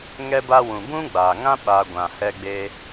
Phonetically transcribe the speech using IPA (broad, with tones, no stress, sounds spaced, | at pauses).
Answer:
ŋ ɛ˧ b a˧ w ũ˨ b ũ˦ ɡ͡b aː˨ ŋ ã˦ ɓ a˧ ɡʷ ã˨ h ɛ˧ ɡ͡b e˧